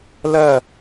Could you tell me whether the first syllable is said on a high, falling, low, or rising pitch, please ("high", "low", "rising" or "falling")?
falling